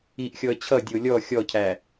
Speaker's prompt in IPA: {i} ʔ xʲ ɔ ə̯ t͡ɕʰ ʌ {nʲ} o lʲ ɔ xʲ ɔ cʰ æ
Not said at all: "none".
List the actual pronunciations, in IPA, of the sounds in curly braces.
i, dʲ

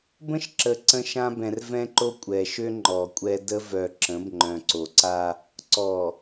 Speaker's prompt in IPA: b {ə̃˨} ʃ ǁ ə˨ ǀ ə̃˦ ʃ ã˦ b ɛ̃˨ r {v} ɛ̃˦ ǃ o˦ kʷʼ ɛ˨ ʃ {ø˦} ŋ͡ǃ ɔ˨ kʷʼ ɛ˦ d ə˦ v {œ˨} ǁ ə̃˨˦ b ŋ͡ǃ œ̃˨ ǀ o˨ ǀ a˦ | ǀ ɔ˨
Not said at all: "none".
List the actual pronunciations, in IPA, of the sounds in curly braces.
ə̃˦, v, ø˦, œ˨

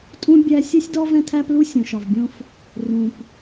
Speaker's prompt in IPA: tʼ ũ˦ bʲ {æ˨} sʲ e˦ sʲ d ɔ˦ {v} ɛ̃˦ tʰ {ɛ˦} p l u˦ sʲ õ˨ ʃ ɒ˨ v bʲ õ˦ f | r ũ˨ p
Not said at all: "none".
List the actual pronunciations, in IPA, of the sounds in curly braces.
æ˦, v, æ˦

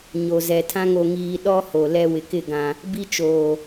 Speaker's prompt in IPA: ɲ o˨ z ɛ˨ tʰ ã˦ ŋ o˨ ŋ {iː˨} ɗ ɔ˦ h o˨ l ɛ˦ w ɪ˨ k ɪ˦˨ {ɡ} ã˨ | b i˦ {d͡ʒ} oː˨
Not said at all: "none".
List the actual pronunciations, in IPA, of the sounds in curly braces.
iː˨, ɡ, t͡ʃ

